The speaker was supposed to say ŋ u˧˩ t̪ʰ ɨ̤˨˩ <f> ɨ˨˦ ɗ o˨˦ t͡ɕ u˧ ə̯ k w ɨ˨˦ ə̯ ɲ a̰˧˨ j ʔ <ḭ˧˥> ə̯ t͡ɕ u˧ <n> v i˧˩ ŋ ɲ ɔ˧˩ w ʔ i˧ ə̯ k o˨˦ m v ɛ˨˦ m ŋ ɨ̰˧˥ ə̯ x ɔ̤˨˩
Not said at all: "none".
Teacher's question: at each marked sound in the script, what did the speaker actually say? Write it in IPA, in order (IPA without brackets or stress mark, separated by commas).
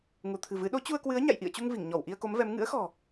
v, ḭ˧˨, ŋ